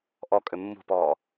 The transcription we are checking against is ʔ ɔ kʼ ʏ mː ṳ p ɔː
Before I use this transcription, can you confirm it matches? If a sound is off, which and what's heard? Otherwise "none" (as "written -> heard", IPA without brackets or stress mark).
none